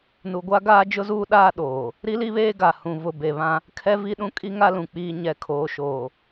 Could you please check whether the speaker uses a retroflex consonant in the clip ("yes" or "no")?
no